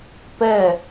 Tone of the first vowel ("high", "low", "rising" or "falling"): falling